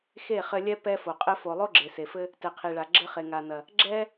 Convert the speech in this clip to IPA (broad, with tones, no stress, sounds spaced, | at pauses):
x e˦˨ χ ɘ˧ lʲ ɛ˧ p ɛ˧ f o˨ qʼ ɘ˧ f o˨ lˠ o˦ ɡ͡ǁ e˨ s e˨ f ɘ˧ | t ɛ˨ qʰ i˨ ɭ a˨ ɡ͡ǁ ɘ˧ χ e˨ ŋ a˨ n ɐ˨ | ɡ͡ǁ ɛ˦